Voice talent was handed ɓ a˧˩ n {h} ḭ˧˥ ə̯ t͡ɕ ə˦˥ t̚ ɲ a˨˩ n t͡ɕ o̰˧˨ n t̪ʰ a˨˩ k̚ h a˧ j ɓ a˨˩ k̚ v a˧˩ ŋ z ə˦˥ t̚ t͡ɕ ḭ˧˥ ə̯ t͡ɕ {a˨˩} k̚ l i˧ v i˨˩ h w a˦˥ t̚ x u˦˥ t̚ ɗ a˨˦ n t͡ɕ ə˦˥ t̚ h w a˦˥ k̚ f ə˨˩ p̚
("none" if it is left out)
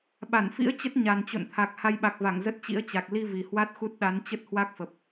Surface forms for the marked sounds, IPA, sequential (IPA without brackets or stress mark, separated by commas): f, a˨˩